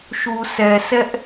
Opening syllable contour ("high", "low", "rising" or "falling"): low